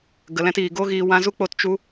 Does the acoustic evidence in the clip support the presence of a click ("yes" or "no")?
no